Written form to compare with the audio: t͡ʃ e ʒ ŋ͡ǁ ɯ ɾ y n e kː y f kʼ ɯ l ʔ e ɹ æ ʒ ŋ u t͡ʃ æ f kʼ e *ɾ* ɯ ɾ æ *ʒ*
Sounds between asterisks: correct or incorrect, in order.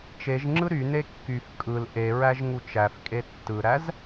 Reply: incorrect: tː, incorrect: z

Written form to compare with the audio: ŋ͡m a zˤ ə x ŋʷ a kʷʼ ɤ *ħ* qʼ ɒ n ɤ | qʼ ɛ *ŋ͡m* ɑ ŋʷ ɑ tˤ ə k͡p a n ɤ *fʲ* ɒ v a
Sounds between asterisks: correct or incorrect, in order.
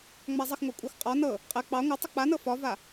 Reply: incorrect: x, incorrect: k͡p, incorrect: f

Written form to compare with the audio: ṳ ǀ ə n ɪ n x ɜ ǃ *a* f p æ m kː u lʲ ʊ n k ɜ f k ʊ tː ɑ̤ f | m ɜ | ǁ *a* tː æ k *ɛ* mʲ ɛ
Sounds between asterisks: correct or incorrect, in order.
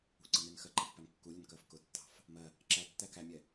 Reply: incorrect: ɑ, incorrect: æ, incorrect: æ

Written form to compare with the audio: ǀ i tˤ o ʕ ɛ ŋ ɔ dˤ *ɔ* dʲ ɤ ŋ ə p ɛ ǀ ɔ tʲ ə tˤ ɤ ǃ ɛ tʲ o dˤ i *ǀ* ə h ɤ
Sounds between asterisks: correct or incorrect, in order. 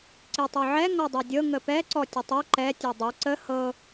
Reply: incorrect: ɤ, correct

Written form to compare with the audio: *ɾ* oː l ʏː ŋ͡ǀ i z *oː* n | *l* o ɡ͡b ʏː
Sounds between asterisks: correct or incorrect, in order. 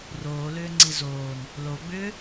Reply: incorrect: r, correct, correct

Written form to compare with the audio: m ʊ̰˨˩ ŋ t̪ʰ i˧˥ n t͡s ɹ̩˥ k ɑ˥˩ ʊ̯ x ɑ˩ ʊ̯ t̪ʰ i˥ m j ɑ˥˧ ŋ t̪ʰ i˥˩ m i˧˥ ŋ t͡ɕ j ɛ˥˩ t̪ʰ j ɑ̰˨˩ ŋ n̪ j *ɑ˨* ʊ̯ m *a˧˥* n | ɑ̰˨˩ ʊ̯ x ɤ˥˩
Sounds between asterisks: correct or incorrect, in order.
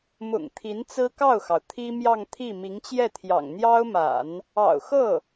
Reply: incorrect: ɑ˥, incorrect: a̰˨˩˦

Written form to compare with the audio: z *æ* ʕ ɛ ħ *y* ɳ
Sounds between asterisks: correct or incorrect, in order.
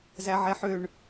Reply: correct, incorrect: ø

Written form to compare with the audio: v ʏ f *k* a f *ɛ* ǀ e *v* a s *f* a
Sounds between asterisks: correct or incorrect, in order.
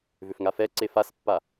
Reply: incorrect: ŋ, correct, incorrect: f, incorrect: pː

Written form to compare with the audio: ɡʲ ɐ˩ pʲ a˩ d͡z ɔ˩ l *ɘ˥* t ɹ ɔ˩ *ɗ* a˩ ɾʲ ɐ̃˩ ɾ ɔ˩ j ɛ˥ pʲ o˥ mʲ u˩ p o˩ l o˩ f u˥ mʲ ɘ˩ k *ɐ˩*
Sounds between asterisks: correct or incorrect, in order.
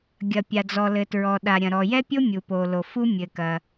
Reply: incorrect: ɘ˩, correct, correct

